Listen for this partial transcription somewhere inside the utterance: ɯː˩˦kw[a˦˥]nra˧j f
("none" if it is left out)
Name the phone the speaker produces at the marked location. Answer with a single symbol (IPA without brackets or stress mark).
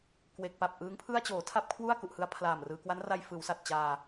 a˦˥